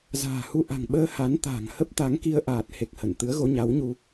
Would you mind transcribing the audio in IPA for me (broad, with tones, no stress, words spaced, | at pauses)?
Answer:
za̤ː˨˩hu˧ ʔa̤˨˩ŋɓəː˧ ha˨˦n t̪a̤ː˨˩ŋhə˦˥p̚t̪a˨˦ŋki˧ə̯ ʔaː˨˩t̚he˨˩k̚ hə˧˩n t̪ɨ˨˦ə̯ɣo˨˦ɲa˨˦wɲu˧